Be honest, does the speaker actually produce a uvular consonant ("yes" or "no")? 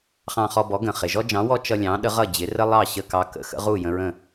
yes